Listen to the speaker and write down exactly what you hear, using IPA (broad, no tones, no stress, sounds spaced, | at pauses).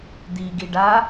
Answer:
d̪ i ɡ i ɖ a